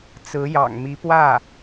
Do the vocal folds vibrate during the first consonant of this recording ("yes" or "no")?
no